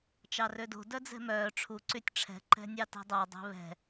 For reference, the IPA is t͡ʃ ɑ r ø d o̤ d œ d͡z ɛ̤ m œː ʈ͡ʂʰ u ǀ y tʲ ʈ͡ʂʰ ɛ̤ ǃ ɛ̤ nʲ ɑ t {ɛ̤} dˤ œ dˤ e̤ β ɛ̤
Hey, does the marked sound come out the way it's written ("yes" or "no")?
yes